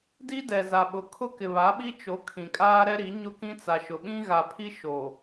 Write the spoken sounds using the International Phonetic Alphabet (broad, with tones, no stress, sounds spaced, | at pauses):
d i˦ d ɛ˨ z a˨ ɓ ʊ˨ kʰ ʊ˦ k ɪ˨ β a˨˦ ɓ i˦ t͡ʃ o˨˦ kʰ ĩ˨ kʼ aː˦ ɾ ɛ˦ ɾ i˨˦ ɲ ʊ˦ k ĩ˦ t͡s a˨ ʃ ʊ˨ ɓ ĩ˦ ɣ a˨ pʰ i˦ ʃ o˨